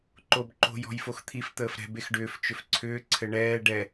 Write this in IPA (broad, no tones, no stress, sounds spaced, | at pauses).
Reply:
ǃ o b ǃ o̤ j ɔ̤ j f o x t̪ʰ i f t̪ əː f ɾ ɛ̤ b e x ɖ ʏː f t͡ʃ ʏ f ǀʰ ʏː ǀʰ ɘ ɳ ɛː ɖ ɛ